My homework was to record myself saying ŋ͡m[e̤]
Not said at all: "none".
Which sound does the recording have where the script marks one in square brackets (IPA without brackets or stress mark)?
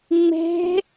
e̤